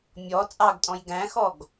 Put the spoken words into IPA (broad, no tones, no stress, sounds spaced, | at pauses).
mʲ ɔ t͡sʼ ɑ ɡ tʼ ɔ̃ j ɡ æ̃ x ɔ ɡ